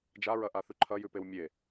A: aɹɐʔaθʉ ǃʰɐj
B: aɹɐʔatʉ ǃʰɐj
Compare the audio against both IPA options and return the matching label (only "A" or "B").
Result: A